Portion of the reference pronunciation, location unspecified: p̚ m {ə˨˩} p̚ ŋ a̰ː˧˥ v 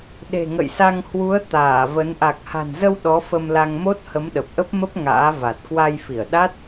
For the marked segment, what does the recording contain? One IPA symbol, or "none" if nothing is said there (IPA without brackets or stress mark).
ə˦˥